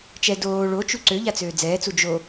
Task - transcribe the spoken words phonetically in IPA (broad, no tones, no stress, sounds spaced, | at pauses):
t͡ʃ ɛ d oː ɭ o t͡ʃ u ǀ ø ʎ a t͡s øː d͡z ɛː t͡s u d͡ʒ o